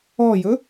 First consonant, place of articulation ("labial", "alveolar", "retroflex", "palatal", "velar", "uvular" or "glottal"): palatal